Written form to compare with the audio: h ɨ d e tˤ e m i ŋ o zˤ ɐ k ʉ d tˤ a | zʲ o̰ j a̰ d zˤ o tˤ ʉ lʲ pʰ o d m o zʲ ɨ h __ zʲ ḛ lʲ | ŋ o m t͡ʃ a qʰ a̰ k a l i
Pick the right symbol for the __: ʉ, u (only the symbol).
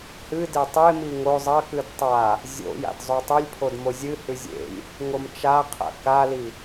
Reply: ʉ